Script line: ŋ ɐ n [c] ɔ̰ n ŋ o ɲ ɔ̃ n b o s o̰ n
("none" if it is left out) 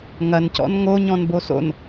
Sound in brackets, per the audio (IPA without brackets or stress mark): c